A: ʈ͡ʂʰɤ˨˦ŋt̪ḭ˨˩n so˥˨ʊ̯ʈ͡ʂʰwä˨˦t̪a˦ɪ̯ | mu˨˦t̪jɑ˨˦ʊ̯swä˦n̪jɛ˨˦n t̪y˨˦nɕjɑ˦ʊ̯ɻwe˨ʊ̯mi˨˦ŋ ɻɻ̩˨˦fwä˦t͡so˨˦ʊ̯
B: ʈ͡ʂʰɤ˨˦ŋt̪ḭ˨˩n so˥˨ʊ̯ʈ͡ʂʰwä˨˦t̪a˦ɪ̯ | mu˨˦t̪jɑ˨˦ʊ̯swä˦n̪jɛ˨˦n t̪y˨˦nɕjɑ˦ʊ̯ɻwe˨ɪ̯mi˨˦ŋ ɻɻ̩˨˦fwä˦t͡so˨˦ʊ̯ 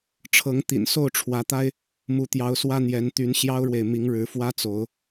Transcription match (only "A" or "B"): B